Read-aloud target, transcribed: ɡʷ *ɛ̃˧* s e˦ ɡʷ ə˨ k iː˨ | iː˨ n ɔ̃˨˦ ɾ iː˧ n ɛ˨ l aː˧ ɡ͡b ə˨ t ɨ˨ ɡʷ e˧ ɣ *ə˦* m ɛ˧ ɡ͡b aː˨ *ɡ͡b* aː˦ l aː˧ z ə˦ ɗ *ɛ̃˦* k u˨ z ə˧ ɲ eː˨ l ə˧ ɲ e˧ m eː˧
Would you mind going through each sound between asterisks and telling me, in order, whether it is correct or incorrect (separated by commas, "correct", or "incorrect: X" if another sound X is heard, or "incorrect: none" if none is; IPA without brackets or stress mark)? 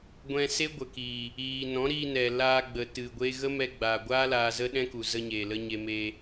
correct, correct, incorrect: ɡʷ, correct